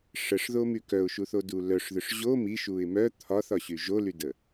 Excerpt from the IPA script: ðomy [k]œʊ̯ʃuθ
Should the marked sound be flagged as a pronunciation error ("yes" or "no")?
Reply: no